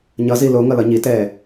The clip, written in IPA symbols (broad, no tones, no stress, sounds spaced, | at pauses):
ɲ ʌ z i l o ŋ ʌ l ʌ ɲ i t ɛː